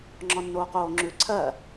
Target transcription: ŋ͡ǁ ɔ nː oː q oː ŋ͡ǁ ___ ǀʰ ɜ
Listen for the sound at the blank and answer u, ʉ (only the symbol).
ʉ